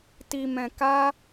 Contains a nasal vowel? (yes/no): yes